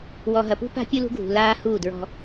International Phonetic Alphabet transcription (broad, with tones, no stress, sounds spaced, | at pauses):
w ɔ˨ ɦ ɐ˨ p ṳ˦ p a̤˦ pʲ u˦ l ṳ˦ ɡʱ ṳ˨ l aː˦ h uː˦˨ d ɹ ɔ̤˦